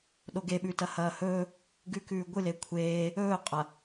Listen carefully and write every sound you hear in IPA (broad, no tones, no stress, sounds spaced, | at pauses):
ɗ o ɡ e ɓ ʉ t ɐ h ɐː h ɵː | ɡ ʉ k ʉː ɡʷ ɨ l e kʷʰ eː | ɵː qʼ ɐ